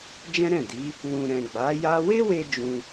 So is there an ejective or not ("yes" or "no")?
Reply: no